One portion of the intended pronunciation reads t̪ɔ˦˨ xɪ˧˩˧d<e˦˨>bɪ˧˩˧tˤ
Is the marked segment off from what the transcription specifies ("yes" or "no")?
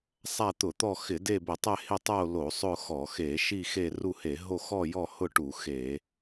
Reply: no